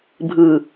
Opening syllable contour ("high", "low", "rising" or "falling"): low